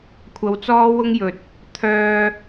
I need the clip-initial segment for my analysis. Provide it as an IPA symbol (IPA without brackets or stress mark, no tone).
kʷʰ